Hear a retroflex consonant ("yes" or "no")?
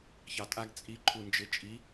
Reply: no